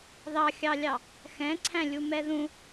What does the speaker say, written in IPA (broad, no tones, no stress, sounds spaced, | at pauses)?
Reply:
ð ɑ xʲ ɑ lʲ ɑ | x ɛ̃ ǀʰ æ̃ lʲ u m ɛ ð ũ